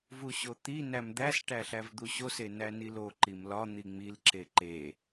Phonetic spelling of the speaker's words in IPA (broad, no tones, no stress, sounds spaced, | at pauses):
v u ɕ o t̪ i n æ m d̪ æ s ʈ æ ɬ æ v d̪ u ɕ o s e n æ n i l o ǃ i m l ɒ n̪ i ŋ͡m i l ǁ e ǃ e